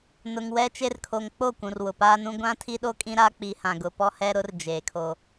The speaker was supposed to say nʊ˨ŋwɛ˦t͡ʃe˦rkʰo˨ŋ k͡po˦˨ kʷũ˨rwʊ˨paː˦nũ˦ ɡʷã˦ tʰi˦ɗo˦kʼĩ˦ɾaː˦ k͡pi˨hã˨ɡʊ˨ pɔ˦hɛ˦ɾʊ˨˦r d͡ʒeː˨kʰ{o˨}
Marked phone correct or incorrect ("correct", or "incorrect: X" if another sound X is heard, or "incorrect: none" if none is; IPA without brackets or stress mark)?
incorrect: o˦